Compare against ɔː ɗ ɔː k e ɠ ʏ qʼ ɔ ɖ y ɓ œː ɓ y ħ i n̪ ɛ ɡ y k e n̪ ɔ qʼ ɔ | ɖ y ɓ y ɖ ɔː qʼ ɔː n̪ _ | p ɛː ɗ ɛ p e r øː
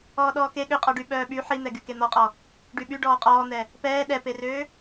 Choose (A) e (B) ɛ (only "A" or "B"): B